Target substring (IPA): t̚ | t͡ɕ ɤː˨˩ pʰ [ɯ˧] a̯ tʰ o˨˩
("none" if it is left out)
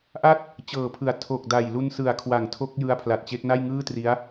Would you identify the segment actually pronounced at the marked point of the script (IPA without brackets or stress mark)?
ɯ˨˩